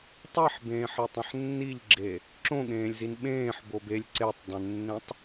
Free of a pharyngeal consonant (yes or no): no